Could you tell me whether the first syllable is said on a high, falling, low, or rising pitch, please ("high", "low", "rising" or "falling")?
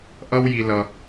high